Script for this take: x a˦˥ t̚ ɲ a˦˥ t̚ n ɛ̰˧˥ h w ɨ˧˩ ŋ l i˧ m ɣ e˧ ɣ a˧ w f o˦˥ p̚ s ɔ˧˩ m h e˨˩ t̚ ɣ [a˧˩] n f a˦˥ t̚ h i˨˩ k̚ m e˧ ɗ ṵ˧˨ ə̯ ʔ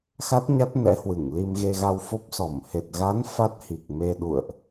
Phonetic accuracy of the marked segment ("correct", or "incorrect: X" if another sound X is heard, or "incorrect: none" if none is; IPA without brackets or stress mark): incorrect: a˨˦